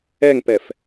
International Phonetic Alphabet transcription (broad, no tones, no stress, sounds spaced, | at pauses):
ɛ ŋ p ɛ f